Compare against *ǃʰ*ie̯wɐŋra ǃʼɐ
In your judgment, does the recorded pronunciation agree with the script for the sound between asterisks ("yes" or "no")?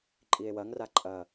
no